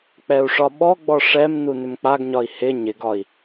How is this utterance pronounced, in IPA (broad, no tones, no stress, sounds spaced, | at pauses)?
k͡p ɛ u̯ ʂ ɒ ɓ ɔ ɡ͡b ɔ ʂ ɛ m n u n ʏ m k͡p a ɡ ɲ ɒ i̯ h ɪ ɲ ɪ ɡ ɒ i̯